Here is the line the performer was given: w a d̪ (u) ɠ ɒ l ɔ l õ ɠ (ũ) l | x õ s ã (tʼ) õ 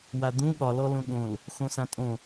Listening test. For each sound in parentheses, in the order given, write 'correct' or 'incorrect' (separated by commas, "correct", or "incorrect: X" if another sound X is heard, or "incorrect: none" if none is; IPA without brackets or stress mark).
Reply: incorrect: ũ, incorrect: õ, correct